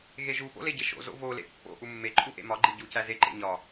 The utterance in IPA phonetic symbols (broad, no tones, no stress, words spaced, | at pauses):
ɣeʒupo̰ leɟeʃo̰zo̰ volḛ pːo̰ ʔumːeǃʼu ʔḛmɒɡ͡ǃi ɟucæ zeǃḛ ɲɒ